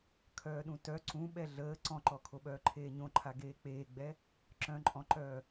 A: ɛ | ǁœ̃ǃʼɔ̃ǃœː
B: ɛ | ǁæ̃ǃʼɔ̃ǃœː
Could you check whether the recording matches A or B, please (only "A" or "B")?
A